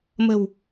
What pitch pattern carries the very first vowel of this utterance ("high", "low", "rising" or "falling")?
low